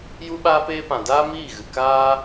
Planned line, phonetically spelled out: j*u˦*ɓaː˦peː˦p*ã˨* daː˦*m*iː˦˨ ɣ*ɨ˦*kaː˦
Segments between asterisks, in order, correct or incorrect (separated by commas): correct, correct, correct, incorrect